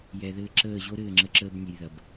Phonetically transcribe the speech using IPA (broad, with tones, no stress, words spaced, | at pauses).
jɛ˨ðɘː˧ǁəː˦˨ ʑo˦ɾɘː˦˨ŋ͡ǁə˧ǁəː˧b nʲɘ˨j ðɐ˨b